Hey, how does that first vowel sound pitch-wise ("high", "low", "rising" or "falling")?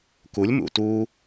rising